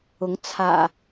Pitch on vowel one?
rising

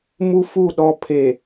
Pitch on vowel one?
high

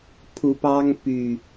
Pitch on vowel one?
rising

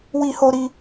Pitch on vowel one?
high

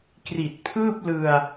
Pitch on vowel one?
low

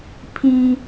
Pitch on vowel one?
high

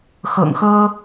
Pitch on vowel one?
low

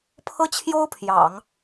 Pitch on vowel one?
high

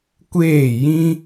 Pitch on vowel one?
falling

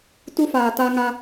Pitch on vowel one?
high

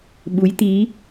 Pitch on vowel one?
rising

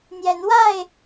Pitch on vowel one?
rising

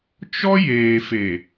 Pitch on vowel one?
high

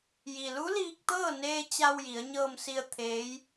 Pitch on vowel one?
low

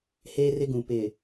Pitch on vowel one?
high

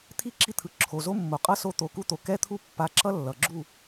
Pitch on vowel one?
high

